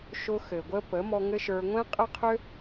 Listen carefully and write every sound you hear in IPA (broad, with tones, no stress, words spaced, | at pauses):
ʃʊ˧ xɘ˨ɡʷə˦pə˨˦ mɔ˧ŋɘ˦ʃə˞˧ ŋʷɛ̃˦qʼə˦qʰø˦